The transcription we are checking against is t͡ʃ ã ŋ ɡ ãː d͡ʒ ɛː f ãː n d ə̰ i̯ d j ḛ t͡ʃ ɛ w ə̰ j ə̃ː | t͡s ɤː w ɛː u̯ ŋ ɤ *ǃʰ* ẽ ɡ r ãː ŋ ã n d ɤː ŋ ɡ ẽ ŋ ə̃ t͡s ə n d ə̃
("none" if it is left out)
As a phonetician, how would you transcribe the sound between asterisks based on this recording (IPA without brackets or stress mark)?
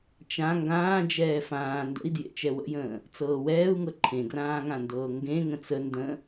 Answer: ǃʰ